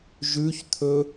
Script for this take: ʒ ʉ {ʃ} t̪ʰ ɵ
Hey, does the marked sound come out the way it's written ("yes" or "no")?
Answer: no